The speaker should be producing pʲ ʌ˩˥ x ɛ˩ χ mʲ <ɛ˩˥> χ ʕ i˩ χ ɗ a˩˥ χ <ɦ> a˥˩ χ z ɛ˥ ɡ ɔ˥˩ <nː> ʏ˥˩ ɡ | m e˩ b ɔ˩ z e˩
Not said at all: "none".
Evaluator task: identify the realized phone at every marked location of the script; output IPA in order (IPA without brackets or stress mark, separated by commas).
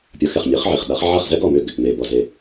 ɛ˩˥, ʕ, m